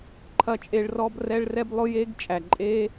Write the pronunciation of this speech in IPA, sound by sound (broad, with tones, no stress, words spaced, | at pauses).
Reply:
ǃʰɐ˥t͡ʃʼe˥ɭ rɔ˥brɛ˥ɭrɛ˥b lˠʊ˥je˥ɡt͡ʃʼæ˩ ǃʼe˥